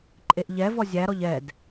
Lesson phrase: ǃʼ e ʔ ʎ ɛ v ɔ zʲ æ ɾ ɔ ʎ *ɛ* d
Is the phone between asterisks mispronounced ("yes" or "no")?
no